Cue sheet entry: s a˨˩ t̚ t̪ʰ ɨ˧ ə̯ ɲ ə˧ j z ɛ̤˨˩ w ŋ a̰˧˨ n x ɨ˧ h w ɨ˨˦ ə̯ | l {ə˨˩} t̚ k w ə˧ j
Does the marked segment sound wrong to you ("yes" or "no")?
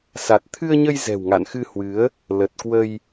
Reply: no